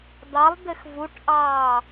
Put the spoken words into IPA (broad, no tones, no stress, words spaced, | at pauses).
d̪ɑlˠ d̪ɘxvuʈʔɑː